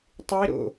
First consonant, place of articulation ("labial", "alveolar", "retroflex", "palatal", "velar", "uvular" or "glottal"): alveolar